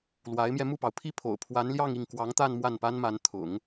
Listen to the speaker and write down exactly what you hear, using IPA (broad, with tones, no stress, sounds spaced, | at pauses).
l w a˧˥ ɪ̯ m j ɛ˧ m u˥˩ p ɑ˩ ʊ̯ pʰ i˥˩ pʰ o̰˨˩ ʊ̯ pʰ w a˧˥ n l j ɑ˥˧ ŋ i˥˩ ŋ k w ɑ˧˥ ŋ t̪ a˥˧ n m w a˥˩ n p a˥ n m a˧˥ n t̪ʰ ʊ̰˨˩˦ ŋ